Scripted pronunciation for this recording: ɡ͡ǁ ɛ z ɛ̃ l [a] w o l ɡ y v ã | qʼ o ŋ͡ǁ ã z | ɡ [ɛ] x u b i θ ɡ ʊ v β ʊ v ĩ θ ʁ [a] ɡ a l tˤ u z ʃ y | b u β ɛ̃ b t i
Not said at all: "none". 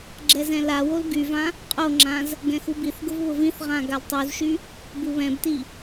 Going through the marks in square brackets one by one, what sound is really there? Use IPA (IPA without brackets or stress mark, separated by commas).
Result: a, ɛ̃, ã